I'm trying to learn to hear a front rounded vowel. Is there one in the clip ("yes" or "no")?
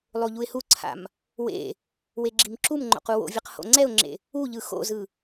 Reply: no